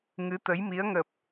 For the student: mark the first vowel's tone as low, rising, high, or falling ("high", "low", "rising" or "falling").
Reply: rising